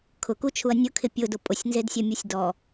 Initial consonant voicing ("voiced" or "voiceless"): voiceless